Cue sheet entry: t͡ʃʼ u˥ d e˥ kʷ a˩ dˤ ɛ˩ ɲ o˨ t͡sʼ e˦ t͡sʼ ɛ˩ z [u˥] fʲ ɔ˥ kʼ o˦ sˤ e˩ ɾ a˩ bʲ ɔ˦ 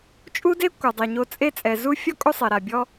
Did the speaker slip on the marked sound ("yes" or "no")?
yes